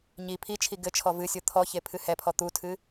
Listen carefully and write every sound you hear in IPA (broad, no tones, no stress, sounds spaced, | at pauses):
ɲ i pʰ i t͡ʃʰ i ɡ ɘ t͡ʃʰ ɔ v ɨ sʲ o t̪ʰ ɔ ç e pʰ ɨ h ɛ pʰ ɔ t̪ u tʰ ɨ